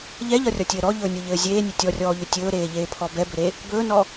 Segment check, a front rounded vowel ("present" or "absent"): present